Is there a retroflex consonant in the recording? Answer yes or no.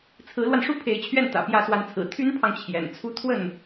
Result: yes